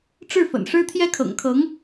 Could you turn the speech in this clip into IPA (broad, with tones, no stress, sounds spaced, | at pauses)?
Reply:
ʈ͡ʂ ɻ̩˥˩ f ə̰˨˩ n ʂ ɻ̩˥ t̪ʰ j ɛ˥ kʰ ɤ̰˨˩ ŋ kʰ ɤ˧˥ ŋ